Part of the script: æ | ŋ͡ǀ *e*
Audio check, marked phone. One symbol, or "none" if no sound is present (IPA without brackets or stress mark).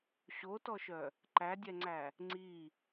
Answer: i